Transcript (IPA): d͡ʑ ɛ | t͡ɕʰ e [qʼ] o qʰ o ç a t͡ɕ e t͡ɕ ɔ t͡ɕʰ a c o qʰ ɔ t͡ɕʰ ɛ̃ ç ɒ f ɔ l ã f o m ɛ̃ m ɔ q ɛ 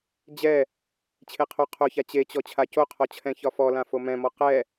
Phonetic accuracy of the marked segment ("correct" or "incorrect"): incorrect